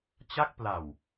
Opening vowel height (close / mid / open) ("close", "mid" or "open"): open